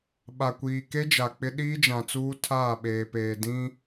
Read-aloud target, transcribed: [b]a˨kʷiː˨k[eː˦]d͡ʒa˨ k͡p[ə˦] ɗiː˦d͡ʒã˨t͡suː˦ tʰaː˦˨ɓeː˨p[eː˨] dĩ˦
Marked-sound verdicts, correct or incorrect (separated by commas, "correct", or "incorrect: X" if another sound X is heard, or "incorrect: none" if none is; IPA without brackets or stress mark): incorrect: ɓ, incorrect: e˦, incorrect: ɪ˦, correct